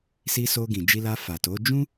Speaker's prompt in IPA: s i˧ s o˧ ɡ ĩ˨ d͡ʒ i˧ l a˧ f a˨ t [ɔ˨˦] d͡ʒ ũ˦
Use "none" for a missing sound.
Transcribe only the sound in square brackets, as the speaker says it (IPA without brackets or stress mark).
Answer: o˨˦